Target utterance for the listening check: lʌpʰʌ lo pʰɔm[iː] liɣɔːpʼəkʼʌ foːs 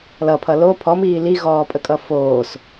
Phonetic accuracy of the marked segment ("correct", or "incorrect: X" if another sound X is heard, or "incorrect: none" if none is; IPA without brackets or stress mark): correct